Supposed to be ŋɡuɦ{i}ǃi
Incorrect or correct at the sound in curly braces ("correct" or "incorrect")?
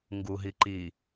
correct